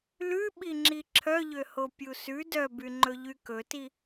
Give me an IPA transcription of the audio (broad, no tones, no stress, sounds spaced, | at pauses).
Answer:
l ʉ ɓ i ŋ͡ǁ i ǁʰ œ ʎ ø h o pʲ u s ʉ d œ b y ŋ͡ǃ ɵ ʎ y k ɵ t i